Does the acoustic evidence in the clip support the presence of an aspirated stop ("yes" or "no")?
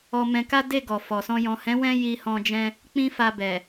no